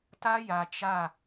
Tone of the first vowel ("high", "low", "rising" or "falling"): high